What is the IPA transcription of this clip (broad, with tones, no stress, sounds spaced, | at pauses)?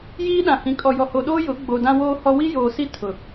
j iː˦ ɗ ã˨ h ĩ˨ kʼ ɔ˨ j ɔ˨ h o˨ ɗ oː˦ j ʊ˨˦ ɡ͡b o˨ d ã˦ w oː˦ h ɔ˦ w i˦ j oː˨ s i˦ tʰ ʊ˨